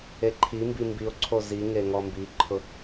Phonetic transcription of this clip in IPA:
e ǃʰ i m b i m b i o̯ ǀʰ o z i ŋ e ŋ ɔ m b i ǃʰ ʊ

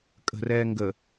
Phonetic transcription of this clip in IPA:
kʼ ə̤ r ɛː ŋ ɡ ə

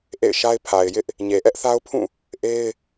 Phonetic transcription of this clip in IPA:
ʔ ḛ˦˨ ɪ̯ ʃ a˦ ɪ̯ pʰ a˨ ɪ̯ j ɪ˦ ʔ | ɲ e˨ ʔ ɛ˦ ʔ θ a˦ ʊ̯ pʰ ũ˦˨ | ʔ e˦ ɪ̯

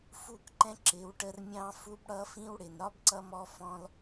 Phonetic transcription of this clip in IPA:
f u˦˨ k ǃ ɛ̃˦ ǁ ɪ˨˦ w ʈ ə˦ r mʲ ɑ̃˦ f u˦ b ɽ ʌ˦ f ĩ˦ w ɽ ɪ˨ n ɾ ɒ˦ b ǀ ʌ˧ m ɔ˧ f ɔ̃˧ l

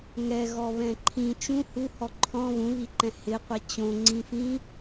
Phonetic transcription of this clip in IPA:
ŋ ɛ ɣ ɔ β ɛ̃ ǃʰ ĩ t͡ʃ ũ h u h ɔ ǃʰ ɔ̃ β ũ β i ǃ ɛ̃ h ɪ qʷ ɛ t͡ɕ õ ŋ͡ǀ ĩ f ĩ

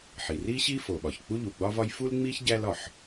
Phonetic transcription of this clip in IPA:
ħ i˩ r i˥ ɕ i˥ f o˩ ɓ ɒ˩ ç k͡p u˥ ʎ u˩ ɡ͡b ɒ˥ v ɒ˥ j f u˥ l ŋ͡m i˥ ç ɟ æ˥ l ɒ˩ ħ

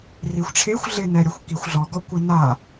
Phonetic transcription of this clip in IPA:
r i xʷ ʈ͡ʂʰ e xʷ ɮ ɪ n ɛ ɾʲ ɔ xʷ k i xʷ ɮ ɔ ɡ ɔ kʷ ɪ n a

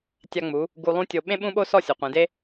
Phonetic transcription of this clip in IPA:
tʲ a˧ ŋ͡m u˩˧ | ɡ u˧ lˠ ũ˥ tʲ o˧ ɓ ẽ˥ ɓ ũ˥ ɓ o˥ s ɔ˥˧ sʲ ɔ˩˧ qʷ ẽ˩˧ d e˥

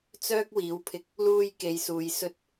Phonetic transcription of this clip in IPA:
t͡s œː˥ k̚ w iː˨˥ w pʰ ɪ˧ k̚ | l uː˧ j k e˨˧ j s uː˨˧ j s ɵ˥ t̚

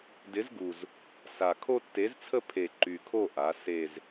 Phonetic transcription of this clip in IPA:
d ɪ˨˥ z ɡ u˨˩ z | s a˨˩ kʰ o˦ tː e˨˥ z t͡sʰ ə˦ pʰ e˨˩ ǃ y˨˩ kʰ o˦˨ ʔ a˩˧ s e˨˩ z

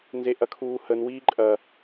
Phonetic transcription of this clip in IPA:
n z e ʔ ɐ kʰ uː h ə n w iː ǃʼ ɐ

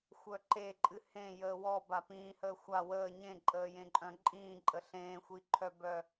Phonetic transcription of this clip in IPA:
xʷ œ ǃ e ǃʼ ɨ h ẽ j əː w ɔ b a p ĩː h əː xʷ a w əː ɲ ẽ ǃʼ əː j ẽ ǃʼ œ̃ ǃʼ ĩː ǃʼ ə ɬ ẽː xʷ i ǃʰ œ b œ

